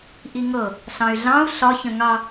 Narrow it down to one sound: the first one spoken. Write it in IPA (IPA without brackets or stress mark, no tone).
ʔ